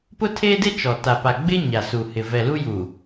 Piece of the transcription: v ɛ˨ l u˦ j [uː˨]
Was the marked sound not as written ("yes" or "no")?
no